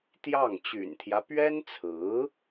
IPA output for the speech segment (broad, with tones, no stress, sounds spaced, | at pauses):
t̪ j ɑ˥˩ ŋ t͡ɕ y̰˨˩ n t̪ʰ j ä˦ p ɥ ɛ˥ n t͡sʰ ɹ̩˧˥